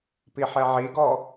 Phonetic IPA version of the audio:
piħɛʕiɡɔ

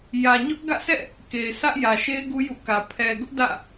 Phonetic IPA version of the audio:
jä˨ɲʊ˦ʔ ɡä̰˦˨sʰɛ̰˦˨ | ke˨ɪ̯sʰä˦ʔjä˨ʃe˦ɪ̯ ɡu˦jṵ˦˨kä˨ pʰɛ˨ɡʊ˦ʔ dä̰˦˨

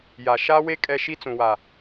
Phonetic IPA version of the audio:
ja˨ ʃa˦we˦ kʼɛ˦ ʃi˦t͡sũ˨wa˨

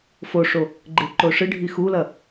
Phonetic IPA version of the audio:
foʂo | ɡ͡ǃeǃoʂɨɖʱi xulɐ

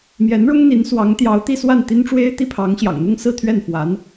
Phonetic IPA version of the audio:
mjɛ˧˥nɻʊ˥ŋn̪i˧˥nswɑ˧˥ŋ t̪jɑ˧˥ʊ̯t̪i˥˧swa˥˩n t̪i˥nʈ͡ʂwe˥ɪ̯t̪i˥˩pʰɑ˧˥ŋ ɕjɑ̰˨˩ŋn̪ʊ˥ŋ sɹ̩˥˧t̪ʰɥɛ˥˩nfwa˧˥n

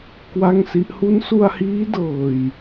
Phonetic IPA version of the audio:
kwa˥˩ŋsi˦˥ʔ hu˦˥nsu˧a̯hiː˦˥ dɤː˨˩j

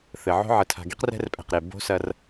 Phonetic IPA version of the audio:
θɘ˨ʕo̤˦ ʕɘ˨tʰa̤˨ɡi˦q rɛ̤˦rpʼɛ̤˨qɾe˨ bo̤˦sɐ˦r

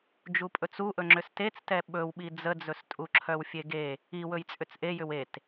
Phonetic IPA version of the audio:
d͡ʒupʼɵt͡suʔɵ ŋ͡ǁʏstet͡stɛ ɓɵwɓi d͡zəd͡zɵstʼu ǁʰœwfʲeɡe | iwɵj t͡sʼʏt͡sʔejʏw et

